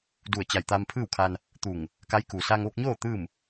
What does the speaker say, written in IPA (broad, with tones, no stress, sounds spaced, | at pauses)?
d u˧˩ ə̯ t͡ɕ a˧˩ j t̪ aː˧ m pʰ ɯː˥˨ w kʰ a˧ n | t̪ u˧˩ ŋ | k a˧˥ j k u˩ s a˧ ŋ ʋ o˧ k̚ ɲ oː˥˨ t̪ ɯː˥˨ m